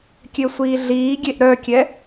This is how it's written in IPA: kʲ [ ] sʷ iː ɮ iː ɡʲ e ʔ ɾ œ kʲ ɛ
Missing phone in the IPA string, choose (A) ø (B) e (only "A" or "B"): A